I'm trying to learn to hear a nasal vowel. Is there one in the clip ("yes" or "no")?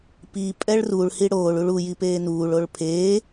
no